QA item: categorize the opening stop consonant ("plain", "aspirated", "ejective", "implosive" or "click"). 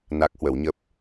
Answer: plain